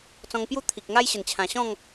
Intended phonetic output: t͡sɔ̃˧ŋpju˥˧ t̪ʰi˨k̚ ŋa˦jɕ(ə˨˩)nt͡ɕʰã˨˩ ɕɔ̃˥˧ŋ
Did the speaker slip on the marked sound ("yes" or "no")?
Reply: no